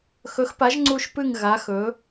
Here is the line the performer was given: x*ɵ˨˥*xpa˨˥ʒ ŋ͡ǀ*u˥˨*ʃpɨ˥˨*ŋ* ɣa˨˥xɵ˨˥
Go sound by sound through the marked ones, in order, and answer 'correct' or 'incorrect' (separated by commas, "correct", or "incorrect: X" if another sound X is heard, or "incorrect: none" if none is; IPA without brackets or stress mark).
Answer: correct, correct, correct